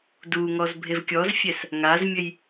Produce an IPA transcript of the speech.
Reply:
d u ŋ ɔ z bʱ e v kʲ ɔ z fʲ ɛ s | ŋ a z mʲ ɘ j

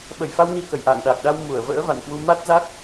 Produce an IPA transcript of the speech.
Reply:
ɓ ə˧˩ j f a˧ w n i˧ k ə˧˩ j ʔ a̰ː˧˨ ŋ ɗ a˨˩ k̚ ɗ a˧ w m u˧˩ ə̯ v ə̰ː˧˥ v a̰˧˨ n k w u˧ m a˦˥ t̚ z a˦˥ k̚

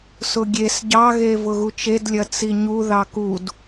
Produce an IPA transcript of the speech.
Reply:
s ʊ ɡʲ e s ɟ ɑ ɣ e v ʊ ɣ u t͡ʃ e d lʲ ɐ t͡s i ɲ u ð ɑ k u d

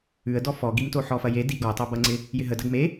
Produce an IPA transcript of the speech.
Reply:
ʉ ə̯ d ɔ f ɔ ɡ i m t o ħ ɔ f ɐ j e d i ɡ ɔ tˤ o b ɐ ŋ͡ǀ ɪ | j ɪ ɦ ə d ɐ ɡ m e

